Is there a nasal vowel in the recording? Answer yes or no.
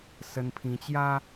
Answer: yes